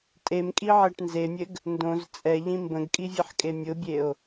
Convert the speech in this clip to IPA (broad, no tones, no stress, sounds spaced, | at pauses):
tʼ e m kʼ i ʕ ɛ ʈ n z e mʲ ɘ ɡ | n d õ z t͡sʼ ɛ ʎ ĩ m b ə̃ ɡ kʼ i vʲ ɘ ħ kʼ e mʲ ʊ bʲ e o̯